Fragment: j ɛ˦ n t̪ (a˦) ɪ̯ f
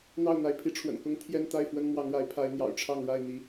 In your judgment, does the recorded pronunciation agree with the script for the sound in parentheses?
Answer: no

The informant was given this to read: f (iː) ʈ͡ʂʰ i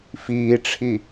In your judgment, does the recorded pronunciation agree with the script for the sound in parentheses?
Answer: yes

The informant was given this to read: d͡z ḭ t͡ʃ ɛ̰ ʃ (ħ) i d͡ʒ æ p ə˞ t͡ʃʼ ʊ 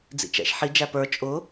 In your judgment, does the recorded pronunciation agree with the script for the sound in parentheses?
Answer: yes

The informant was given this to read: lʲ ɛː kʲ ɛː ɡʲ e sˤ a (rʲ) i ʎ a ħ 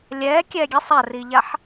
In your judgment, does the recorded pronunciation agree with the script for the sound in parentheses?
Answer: no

